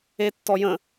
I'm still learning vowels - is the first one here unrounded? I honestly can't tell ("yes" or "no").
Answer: yes